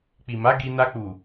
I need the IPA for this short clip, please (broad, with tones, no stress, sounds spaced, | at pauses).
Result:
k͡p i˨ m a˨˦ ɡ i˧ n a˧ k͡p u˨